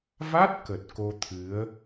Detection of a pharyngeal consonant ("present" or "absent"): absent